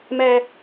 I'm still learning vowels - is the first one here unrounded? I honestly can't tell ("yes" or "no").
yes